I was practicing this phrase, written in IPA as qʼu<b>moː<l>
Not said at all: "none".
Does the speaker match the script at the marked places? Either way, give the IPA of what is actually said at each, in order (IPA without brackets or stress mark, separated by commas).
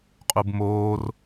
b, r